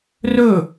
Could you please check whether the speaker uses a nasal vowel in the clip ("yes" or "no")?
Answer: no